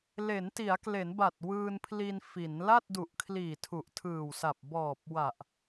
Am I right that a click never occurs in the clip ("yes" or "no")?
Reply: yes